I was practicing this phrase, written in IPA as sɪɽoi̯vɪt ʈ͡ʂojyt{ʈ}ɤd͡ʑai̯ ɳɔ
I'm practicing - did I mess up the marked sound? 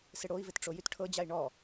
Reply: yes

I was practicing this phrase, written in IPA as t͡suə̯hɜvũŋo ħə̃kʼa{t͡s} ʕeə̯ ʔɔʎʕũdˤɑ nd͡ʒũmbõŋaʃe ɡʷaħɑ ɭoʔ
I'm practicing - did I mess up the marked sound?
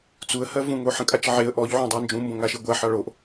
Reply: yes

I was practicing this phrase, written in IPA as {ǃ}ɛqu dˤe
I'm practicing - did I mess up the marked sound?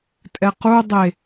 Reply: yes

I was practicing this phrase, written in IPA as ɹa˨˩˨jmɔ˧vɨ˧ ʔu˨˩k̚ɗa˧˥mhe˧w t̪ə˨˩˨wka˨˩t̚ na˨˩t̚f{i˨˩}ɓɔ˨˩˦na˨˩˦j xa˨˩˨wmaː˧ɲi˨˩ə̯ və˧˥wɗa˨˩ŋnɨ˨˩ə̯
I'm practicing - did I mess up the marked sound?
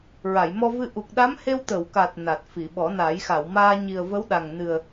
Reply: yes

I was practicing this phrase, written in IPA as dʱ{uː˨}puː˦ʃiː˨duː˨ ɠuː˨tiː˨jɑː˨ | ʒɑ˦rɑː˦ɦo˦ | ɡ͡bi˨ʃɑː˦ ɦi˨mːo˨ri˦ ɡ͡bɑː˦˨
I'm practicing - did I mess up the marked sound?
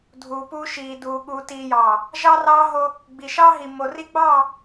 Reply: no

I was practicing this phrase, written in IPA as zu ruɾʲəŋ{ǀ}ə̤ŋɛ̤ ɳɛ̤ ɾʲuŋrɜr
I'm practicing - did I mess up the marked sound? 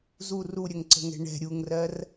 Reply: no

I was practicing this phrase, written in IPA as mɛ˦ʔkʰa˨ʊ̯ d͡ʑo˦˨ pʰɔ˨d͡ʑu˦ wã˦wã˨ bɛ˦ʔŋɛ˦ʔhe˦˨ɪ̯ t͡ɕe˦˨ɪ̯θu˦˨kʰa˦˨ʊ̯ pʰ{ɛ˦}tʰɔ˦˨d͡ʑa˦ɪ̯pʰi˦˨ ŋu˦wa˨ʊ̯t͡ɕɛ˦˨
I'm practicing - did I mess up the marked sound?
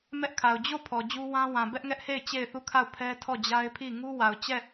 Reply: no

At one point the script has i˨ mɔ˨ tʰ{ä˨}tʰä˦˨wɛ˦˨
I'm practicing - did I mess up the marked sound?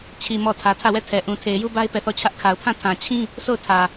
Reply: no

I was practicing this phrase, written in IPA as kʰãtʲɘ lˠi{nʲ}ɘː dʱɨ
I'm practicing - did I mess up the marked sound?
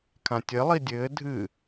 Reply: yes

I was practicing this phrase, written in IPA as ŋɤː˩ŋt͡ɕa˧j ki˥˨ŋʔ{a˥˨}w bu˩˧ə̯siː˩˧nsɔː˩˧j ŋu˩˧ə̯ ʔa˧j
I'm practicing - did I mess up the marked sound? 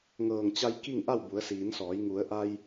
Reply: no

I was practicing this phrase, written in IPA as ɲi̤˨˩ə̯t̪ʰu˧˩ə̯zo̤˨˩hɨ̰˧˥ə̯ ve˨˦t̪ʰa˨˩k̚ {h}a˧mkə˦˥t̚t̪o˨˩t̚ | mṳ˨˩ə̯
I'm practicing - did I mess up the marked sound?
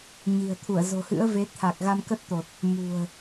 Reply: yes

